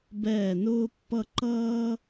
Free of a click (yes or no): no